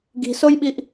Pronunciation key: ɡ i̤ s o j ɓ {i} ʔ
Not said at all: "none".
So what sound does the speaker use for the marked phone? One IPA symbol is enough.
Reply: i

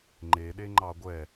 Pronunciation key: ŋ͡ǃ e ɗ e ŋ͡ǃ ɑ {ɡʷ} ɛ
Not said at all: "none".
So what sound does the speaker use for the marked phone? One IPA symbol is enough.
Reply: ɡʷ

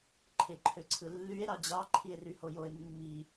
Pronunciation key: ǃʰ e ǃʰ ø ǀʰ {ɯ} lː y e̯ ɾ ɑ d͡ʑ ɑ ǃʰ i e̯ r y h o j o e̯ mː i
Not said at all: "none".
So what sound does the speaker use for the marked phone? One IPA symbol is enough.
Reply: ɯ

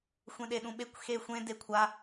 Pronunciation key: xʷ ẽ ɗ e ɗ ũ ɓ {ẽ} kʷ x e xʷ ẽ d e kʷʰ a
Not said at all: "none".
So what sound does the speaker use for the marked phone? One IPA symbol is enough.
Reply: e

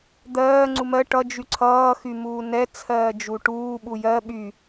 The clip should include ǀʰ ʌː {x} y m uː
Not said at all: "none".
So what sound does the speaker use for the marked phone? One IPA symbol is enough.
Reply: x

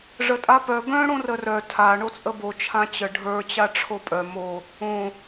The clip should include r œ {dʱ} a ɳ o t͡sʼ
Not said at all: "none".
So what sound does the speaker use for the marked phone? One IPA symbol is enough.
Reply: tʰ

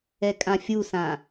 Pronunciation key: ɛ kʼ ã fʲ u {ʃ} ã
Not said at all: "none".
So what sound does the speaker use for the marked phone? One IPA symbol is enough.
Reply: s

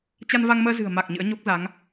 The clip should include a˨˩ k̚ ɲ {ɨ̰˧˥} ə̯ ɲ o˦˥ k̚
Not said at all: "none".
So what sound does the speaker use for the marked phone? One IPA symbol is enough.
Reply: ɨ̰˧˥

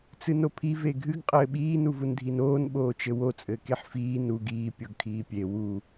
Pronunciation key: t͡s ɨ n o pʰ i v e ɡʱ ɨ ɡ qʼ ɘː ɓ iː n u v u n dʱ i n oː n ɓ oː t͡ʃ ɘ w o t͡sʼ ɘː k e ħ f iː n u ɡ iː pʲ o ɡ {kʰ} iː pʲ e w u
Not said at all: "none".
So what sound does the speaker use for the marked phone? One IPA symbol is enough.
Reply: kʰ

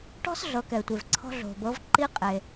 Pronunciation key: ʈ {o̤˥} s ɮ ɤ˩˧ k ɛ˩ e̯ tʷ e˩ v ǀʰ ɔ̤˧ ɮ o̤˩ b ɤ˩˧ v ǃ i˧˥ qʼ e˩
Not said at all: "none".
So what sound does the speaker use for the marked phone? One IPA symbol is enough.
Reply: ɔ̤˥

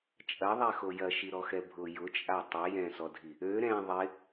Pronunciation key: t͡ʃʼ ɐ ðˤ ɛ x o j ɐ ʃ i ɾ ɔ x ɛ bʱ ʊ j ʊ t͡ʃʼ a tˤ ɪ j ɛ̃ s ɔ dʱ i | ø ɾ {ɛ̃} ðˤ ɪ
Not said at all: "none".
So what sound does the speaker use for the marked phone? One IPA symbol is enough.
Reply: ɛ̃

